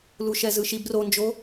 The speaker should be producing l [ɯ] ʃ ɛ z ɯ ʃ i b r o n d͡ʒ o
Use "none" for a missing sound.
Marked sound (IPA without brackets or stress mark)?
u